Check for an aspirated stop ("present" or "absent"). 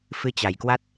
absent